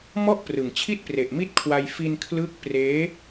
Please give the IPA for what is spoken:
m ɔ˥˩ ʔ p r ɯ˨˩ ŋ t͡ɕʰ i˥˩ t̚ p r e˨˩ ʔ m i˦˥ t̚ kʰ w a˧ j f i˧ n kʰ l ɯ˦˥ k̚ p r eː˦˥

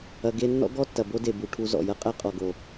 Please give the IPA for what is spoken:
ɐ˧ ɡ e˦ nː ɔ̰˦ ɡ ɔ˦ tː ɐ˨ b o˦ d e˨ b u˨ ʈʰ u˧ z ɔ̰˨ j ɐ˦ qʼ æ˦ qʼ ɔ˨ ɡ o˨

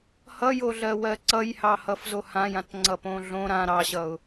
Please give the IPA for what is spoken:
h ʌ j o ɮ ɜ w ɜ ǀ ʌ j h ɑ h ʌ f z o h ã j ã t ŋ͡ǀ ʌ p õ ɮ õ ɾ ã ɾ ɑ ɕ ʌ ʊ̯

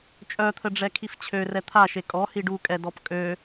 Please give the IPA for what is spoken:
t͡ʃʼ œ t̪ʰ ə ɖ͡ʐ ɛ kʰ i f t͡ɕʰ ø r ɛ t̪ʰ a ʃ e kʼ ɔ h i ɖ u kʼ ɛ d ɔ p kʼ ø

